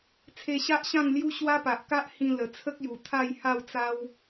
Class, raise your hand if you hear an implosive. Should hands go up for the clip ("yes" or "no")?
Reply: no